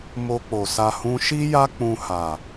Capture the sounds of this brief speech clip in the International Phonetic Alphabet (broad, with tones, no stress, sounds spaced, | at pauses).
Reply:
m o˧ k͡p o˨ s a˧ h ũ˧ ʃ i˦ j a˦ k͡p ũ˧ h a˨